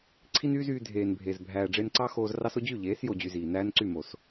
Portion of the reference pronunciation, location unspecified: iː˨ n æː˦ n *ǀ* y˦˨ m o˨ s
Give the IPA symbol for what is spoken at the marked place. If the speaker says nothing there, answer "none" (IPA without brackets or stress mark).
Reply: ǀ